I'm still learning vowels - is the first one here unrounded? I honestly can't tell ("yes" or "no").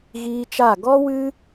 yes